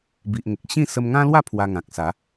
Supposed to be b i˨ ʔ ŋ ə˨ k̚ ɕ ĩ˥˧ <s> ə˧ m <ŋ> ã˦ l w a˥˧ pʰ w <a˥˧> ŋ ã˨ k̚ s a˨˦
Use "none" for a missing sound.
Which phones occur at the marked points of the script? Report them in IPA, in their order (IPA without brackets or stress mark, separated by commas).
s, ŋ, a˧